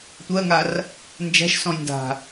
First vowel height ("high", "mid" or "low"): mid